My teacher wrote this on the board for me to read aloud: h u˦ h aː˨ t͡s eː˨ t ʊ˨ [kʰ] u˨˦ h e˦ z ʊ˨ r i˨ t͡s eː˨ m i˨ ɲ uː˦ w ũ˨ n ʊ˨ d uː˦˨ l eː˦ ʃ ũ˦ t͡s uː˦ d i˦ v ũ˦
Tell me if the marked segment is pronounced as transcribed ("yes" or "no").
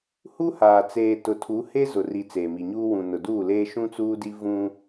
no